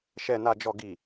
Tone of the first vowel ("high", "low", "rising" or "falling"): low